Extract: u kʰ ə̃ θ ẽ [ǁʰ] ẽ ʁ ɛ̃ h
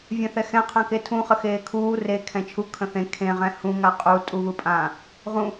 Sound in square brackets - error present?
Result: yes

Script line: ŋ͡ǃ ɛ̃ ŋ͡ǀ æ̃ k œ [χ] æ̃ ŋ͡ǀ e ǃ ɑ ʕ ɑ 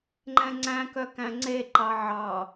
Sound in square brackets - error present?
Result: yes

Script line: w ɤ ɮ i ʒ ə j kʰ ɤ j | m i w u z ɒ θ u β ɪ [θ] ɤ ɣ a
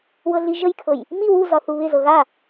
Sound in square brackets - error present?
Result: yes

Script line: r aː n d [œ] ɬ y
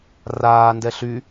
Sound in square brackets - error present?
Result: yes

